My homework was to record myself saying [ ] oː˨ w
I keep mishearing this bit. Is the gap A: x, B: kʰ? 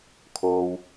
B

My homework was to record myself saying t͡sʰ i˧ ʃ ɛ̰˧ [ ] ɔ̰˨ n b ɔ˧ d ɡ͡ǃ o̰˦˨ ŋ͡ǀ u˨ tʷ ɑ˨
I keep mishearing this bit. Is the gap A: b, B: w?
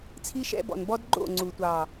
A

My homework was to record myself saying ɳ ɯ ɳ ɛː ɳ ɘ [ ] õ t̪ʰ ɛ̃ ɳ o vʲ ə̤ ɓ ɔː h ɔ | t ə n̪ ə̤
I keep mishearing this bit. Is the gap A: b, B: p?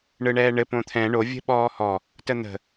B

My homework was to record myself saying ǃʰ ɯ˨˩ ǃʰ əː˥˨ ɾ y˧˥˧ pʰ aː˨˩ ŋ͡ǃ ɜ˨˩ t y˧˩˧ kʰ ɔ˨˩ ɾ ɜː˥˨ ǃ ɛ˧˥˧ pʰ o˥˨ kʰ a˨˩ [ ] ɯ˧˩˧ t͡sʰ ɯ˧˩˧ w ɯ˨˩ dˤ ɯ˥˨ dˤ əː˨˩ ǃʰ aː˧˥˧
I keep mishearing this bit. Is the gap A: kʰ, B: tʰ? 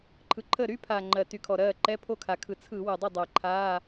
A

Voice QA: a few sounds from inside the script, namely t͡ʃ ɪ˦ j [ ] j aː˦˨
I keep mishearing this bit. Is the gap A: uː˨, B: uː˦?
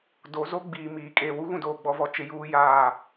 B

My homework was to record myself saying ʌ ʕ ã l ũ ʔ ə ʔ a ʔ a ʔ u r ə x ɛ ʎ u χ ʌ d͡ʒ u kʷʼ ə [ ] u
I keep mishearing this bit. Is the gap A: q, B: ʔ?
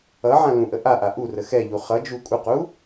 A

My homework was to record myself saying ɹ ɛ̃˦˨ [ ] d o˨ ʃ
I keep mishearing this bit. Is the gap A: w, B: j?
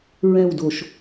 A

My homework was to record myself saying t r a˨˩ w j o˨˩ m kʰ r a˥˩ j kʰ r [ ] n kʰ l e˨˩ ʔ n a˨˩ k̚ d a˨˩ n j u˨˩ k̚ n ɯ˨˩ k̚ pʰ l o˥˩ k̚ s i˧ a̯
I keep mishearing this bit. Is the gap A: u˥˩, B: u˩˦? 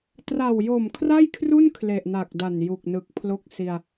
A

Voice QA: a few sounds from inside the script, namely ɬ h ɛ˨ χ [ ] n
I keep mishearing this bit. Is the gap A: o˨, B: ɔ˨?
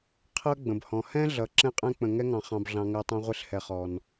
B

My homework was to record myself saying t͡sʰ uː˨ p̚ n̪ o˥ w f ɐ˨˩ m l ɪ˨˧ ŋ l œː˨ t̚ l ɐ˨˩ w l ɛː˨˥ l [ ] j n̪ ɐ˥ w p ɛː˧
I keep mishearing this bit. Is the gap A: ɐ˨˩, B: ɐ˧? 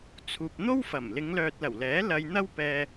B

